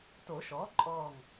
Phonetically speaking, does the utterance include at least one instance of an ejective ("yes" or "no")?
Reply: yes